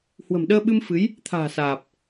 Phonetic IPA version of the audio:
h w ə̤˨˩ m ɗ əː˧ ɓ ɨ˧ m f ɨ˨˦ j | t̪ʰ a̤ː˨˩ s aː˨˩ p̚

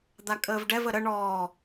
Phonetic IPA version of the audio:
d̪ a kʼ əː v ɖ ɛ v ə ɾ ə ɳ ɔː

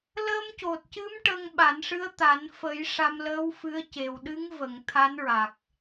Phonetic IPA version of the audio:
l əː˧ m c o˨˩ t̚ c ɨ˧˥ m ʈ ə˧ ŋ ɓ a˨˩˦ n ʂ ɨ˧˥ ə̯ t̪ a˨˩˦ n f ə˨˩˦ j ʂ a˧ m l əː˧˥ w f ɨ˧˥ ə̯ c e˨˩ w ɗ ɨ˧˥ ŋ v ə˨˩˨ ŋ t̪ʰ a˧˥ n ɹ a˨˩ k̚

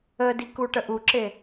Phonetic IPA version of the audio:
ə d i k u ʈ ə ʔ u ǁ e

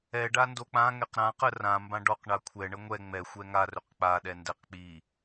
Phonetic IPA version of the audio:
ɛ ɖ a n d o k͡p ã ŋ ɛ q ɾ ã q ə r ã m b ã ɖ ɔ q ɳ a kʷʰ ɛ ɳ ə ŋʷ ɛ ŋ͡m ɛ xʷ ɛ ŋ a r ɵ q k͡p a ɗ ɛ n d ɛ q k͡p i

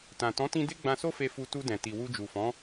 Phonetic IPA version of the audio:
t ã˨ t ɔ̃˨˦ t ĩ˧ d e˦ ɡ͡b ã˧ s o˦ f e˧ f u˧ t u˧ d ɛ̃˨ t i˨ w u˧ d͡ʒ u˨ f ɔ̃˨˦

